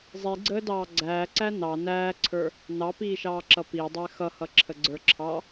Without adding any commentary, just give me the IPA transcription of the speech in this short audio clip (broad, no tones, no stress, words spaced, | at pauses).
zˤiɡ͡ǀəːdɑː ɡ͡ǀæːǀæ nɑ næːǀʰə˞ | nɑpiːʃɑːǁʌ pidˤæ xʌhʌǁʰəɡ͡ǀə˞ ǁʰɑ